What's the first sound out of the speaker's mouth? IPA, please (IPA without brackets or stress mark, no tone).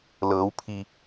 l